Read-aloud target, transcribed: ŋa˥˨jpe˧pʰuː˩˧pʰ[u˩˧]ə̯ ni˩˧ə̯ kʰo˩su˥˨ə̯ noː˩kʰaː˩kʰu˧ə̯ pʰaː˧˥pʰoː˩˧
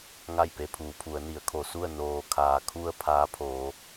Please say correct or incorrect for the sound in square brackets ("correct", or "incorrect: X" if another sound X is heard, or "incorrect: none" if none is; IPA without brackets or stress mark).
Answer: correct